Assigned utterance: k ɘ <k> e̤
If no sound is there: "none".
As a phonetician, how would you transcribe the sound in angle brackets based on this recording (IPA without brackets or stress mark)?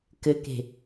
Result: k